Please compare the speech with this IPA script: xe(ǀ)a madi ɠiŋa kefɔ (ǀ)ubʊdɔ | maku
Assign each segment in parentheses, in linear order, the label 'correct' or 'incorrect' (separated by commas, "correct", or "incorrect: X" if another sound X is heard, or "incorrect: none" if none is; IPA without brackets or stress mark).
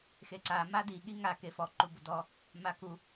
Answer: correct, incorrect: ǃ